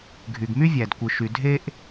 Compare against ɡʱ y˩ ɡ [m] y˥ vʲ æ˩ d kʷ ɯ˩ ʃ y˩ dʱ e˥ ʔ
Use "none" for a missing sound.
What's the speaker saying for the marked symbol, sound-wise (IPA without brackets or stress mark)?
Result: m